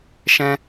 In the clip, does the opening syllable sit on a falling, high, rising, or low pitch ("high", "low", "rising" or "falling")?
high